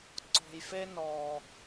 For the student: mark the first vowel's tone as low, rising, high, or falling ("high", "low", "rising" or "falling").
low